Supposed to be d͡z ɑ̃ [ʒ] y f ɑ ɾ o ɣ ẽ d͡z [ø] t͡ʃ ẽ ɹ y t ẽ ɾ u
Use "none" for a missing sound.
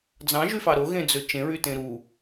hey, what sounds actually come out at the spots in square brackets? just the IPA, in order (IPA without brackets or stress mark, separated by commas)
ʒ, ø